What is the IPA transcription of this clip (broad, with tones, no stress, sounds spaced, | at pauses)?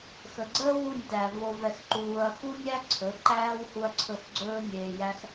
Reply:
x ə˨ ɡ͡ǀ əː˦ w u˦˨ nʲ t æ˨ v o˧ v ɛ˧ x ǃ uː˧ ɐ̯ x u˦ nʲ æ˦ ǀʰ ɵ˨˦ ǃ æː˦ w h u˧ ɐ̯ ǀʰ ɵ˦˨ x ɡ͡ǀ ɵː˦ nʲ eː˧ j æ˦ x